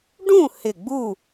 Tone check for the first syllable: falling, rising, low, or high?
falling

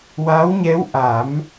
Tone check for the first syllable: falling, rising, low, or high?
rising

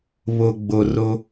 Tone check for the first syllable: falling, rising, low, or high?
low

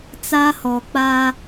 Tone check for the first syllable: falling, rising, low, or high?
high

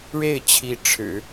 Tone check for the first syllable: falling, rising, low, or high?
falling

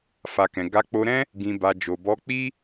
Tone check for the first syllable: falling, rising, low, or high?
low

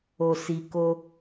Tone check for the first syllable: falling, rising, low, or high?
low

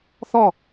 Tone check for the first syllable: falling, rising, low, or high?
falling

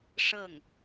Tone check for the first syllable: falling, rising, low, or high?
falling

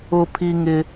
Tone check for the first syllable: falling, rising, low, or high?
high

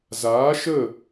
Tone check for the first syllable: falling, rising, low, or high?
rising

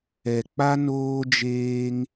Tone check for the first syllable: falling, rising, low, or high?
low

